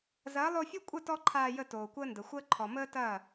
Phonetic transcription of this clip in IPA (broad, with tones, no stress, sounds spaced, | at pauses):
z ɐː˨˦ lˠ o˧ fʲ o˦ kʷʼ ə˦˨ t ɔ˦ ǃʰ aː˧ j ə˧ t oː˨ kʷ əː˦ n d ə˨ xʷ əː˦ ǃʰ ɔ˨ m əː˦ t ɐː˦˨